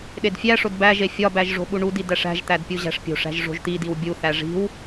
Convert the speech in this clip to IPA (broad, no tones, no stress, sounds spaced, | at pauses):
ɗ e d fʲ æ ʂ o d b æ ʒ e fʲ ɒ b æ ʒ ʐ o̤ ɓ u ɳ u d i d æ ʂ æ̤ ʒ t̪ æ d pʲ u ʑ æ̤ ʂ pʲ o̤ ʂ æ̤ ʒ ʐ o̤ ʒ t̪ i d i w bʲ u θ æ ʐ i̤ w